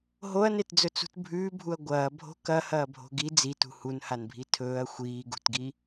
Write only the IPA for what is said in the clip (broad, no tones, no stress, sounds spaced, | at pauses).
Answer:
ɦ o ɐ̯ n e t d͡z ɵ t͡s ṳ t bʱ ʉː bʱ u ɐ̯ ɡʷ ɐː bʱ o̤ k ɐ h ɐː bʱ o̤ ɡ i d͡z i t ṳ h u n h a n bʱ i tʰ ɵː ɐ̯ xʷ iː ɡ ṳ t ɡ i